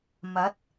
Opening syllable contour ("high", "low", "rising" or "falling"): rising